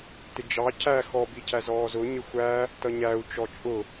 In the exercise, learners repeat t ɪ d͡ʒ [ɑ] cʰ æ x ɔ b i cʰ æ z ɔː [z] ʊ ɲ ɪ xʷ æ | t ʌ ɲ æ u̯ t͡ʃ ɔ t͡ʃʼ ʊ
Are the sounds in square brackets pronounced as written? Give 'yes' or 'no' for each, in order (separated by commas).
yes, yes